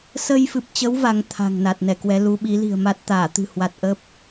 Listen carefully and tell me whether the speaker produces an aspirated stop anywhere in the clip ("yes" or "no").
yes